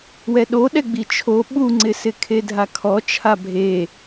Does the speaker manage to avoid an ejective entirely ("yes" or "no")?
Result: yes